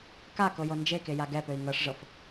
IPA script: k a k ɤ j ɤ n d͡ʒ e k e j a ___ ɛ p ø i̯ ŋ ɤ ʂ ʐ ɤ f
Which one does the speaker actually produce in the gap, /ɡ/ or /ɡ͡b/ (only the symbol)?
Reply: ɡ